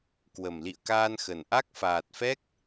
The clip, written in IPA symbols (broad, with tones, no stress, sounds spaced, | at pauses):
k w ə˨˩ m l ḭ˧˨ ə̯ k aː˧ n x ə˨˩ n ʔ a˦˥ k̚ f aː˨˩ t̚ f ɛ˦˥ k̚